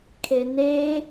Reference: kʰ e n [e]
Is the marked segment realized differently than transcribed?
no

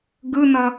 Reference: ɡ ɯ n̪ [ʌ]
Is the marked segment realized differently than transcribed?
no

